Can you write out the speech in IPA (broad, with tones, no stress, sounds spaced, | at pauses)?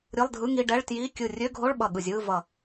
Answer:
ɾʲ ɯ˧˥˧ lˠ dʱ ɯ˧˥˧ ŋ i˧˥˧ ɖ ɛ˧˥˧ ɭ t j i˧˥˧ kʲ ɯ˧˩ rʲ ø˧˥˧ ɡʱ o˧˥˧ ɭ ɓ ʌ˧˩ ɠ ɯ˧˩ zʲ ɯː˧˥˧ v ʌ˧˩